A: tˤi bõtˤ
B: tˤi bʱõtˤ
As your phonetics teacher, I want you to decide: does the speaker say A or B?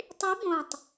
A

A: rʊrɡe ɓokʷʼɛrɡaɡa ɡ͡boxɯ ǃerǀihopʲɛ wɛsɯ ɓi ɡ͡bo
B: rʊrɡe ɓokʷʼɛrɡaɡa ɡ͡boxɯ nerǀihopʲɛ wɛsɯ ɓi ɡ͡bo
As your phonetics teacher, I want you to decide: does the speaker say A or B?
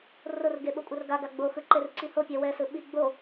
A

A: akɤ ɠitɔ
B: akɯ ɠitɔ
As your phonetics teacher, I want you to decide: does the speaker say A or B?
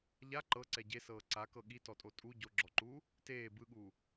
A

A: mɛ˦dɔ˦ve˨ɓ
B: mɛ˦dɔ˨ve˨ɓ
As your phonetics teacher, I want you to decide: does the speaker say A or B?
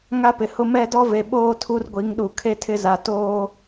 A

